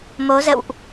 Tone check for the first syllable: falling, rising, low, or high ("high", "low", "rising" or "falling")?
rising